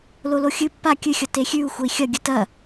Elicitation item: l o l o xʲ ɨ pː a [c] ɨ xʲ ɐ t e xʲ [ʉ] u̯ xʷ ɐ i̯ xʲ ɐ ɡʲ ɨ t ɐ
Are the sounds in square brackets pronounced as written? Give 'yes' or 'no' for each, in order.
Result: no, yes

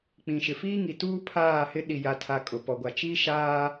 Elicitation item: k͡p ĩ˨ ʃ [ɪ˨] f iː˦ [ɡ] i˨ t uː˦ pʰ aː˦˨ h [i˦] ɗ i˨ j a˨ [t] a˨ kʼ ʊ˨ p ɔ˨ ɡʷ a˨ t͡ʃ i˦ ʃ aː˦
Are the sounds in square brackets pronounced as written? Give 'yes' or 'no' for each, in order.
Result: yes, no, no, no

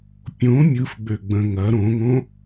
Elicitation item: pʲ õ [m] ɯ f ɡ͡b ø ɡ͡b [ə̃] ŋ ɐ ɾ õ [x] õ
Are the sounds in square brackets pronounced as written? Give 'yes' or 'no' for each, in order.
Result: no, yes, no

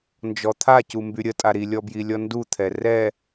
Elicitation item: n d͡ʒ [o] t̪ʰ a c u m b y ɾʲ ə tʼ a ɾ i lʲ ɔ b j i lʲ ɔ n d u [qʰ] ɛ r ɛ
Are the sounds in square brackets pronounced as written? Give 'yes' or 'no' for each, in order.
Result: no, no

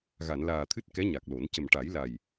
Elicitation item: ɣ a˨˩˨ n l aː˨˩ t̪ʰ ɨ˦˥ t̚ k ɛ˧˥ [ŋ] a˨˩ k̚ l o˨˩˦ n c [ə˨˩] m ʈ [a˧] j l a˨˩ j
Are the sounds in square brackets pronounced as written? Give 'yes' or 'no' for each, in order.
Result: no, yes, no

